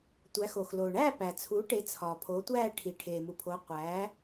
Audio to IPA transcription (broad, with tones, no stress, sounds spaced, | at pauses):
tʷ æ˩˥ x o˩ x l oː˩ ɳ æː˥˨ p æ˩ t͡sʰ u˩˥ ʈ e˩˥ t͡sʰ ɒː˩ pʰ o˩˥ tʷ æː˥˨ ʈʰ i˩ ʈʰ eː˩ m u˩ pʰ o˩˥ qʷ æ˩˥